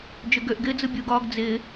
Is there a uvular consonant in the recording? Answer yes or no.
no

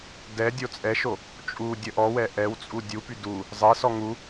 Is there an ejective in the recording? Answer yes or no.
yes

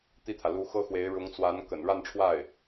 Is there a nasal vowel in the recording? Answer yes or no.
no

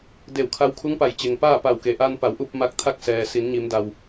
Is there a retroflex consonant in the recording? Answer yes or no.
no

